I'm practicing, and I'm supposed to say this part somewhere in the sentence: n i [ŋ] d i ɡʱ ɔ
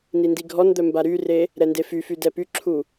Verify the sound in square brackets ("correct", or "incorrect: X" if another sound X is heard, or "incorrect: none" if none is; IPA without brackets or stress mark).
incorrect: n